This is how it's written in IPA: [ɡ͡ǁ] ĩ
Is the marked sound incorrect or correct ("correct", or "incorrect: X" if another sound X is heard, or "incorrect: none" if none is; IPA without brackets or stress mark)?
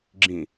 correct